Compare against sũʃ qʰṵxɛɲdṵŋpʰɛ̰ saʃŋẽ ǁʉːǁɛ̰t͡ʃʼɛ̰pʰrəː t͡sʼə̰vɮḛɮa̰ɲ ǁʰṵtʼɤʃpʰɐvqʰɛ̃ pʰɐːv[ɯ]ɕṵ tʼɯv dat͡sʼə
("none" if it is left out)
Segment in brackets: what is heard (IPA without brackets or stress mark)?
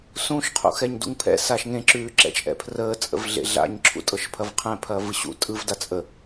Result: ɯ